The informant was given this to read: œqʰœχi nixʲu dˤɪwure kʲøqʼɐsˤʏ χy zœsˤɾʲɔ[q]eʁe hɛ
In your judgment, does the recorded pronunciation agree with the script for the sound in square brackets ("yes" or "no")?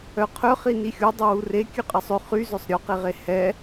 yes